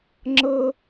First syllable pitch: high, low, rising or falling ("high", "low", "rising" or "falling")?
high